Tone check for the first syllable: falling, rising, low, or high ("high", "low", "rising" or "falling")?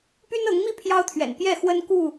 high